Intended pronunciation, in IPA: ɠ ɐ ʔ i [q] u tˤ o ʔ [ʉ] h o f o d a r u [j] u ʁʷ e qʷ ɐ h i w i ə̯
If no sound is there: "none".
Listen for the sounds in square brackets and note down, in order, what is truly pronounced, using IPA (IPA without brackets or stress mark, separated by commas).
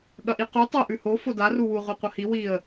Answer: q, ʉ, w